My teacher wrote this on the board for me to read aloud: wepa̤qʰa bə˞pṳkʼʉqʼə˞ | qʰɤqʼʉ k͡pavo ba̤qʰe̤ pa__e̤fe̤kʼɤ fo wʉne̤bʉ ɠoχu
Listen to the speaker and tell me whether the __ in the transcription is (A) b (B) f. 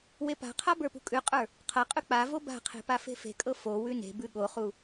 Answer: B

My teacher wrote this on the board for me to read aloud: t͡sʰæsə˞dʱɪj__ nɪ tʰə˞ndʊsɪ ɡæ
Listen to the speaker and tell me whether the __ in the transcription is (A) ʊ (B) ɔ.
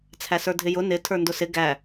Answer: A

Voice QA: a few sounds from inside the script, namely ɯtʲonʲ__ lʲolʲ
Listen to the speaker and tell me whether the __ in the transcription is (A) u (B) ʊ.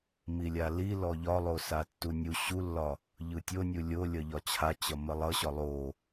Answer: A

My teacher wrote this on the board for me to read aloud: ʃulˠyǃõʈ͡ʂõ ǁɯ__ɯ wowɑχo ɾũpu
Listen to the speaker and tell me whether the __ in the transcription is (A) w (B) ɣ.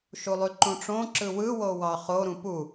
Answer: A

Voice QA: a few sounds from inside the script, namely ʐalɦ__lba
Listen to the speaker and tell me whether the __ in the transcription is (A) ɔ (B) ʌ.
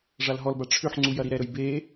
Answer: A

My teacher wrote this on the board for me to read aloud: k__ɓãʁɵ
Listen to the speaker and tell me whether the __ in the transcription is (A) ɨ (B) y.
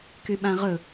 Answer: B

